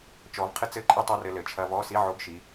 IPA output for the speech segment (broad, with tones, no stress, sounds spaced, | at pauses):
t͡ʃ ɔ˩˧ v qʰ ɨ˧ t͡s ɘ˧˥˧ ǃʼ ɨ˧ tˤ o˧˥˧ r ɘ˧ l ɘ˩˧ t͡ʃʰ ɐ˧ v ɔ˧˥˧ s i˧˥˧ ʕ o˧˥˧ ɡ ʃ i˩˧